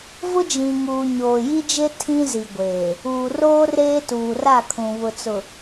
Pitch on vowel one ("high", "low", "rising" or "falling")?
high